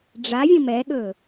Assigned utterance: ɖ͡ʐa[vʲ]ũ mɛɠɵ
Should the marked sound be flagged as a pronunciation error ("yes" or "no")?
no